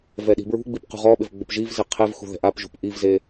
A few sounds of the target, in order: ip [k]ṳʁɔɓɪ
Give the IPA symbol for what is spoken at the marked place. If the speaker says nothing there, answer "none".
q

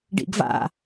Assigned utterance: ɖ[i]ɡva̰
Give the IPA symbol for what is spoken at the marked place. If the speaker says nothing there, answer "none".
ḭ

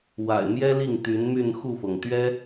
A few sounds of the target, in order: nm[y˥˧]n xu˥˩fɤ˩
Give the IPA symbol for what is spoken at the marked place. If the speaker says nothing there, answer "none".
y˥˧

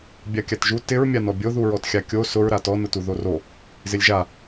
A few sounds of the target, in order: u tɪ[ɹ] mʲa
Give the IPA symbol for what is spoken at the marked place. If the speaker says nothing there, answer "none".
ɹ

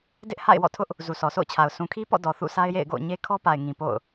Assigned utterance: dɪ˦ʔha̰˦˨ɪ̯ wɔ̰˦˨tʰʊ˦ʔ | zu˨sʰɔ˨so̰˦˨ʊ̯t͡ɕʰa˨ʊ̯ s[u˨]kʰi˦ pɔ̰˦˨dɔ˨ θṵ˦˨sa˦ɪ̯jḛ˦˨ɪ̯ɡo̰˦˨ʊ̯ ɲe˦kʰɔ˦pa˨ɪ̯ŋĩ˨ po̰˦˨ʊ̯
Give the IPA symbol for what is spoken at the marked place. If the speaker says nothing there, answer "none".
ũ˨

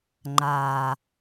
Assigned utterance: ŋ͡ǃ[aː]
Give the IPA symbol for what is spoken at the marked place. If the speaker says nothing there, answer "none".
aː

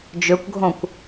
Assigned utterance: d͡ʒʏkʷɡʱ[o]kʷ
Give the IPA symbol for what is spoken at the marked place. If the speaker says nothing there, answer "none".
õ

